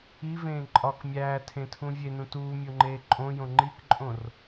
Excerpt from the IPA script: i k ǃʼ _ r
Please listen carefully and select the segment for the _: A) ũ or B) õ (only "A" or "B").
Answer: B